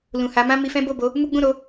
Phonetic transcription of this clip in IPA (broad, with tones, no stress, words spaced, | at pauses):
lũ˨ha˨˦mã˦ mi˧fɛ̃˦ bo˦˨bo˨˦ | mu˦ ɡ͡bũ˦˨ɾo˨˦